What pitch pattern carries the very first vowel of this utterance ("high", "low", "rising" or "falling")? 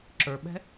low